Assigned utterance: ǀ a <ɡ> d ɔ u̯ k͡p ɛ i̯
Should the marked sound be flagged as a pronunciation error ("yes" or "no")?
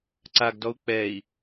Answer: no